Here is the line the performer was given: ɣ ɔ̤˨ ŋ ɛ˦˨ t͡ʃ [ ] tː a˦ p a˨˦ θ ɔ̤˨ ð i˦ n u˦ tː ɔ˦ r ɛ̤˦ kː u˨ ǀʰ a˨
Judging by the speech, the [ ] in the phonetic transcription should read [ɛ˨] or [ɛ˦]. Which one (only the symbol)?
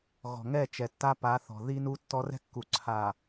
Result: ɛ˨